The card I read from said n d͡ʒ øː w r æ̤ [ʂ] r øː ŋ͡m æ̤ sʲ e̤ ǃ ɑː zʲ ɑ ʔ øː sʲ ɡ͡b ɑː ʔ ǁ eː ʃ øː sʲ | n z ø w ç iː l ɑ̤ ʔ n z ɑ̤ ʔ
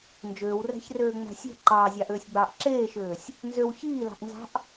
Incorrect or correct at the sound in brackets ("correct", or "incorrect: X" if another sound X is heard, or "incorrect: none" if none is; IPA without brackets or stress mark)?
incorrect: ç